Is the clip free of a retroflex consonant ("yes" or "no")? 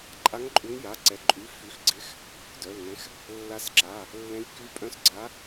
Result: yes